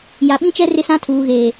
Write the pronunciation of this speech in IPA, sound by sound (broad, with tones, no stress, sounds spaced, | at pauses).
j a˨ ɓ ĩ˦ t͡ʃ ɛ˦ r ɪ˦ s ã˦ tʰ uː˨ ɣ eː˨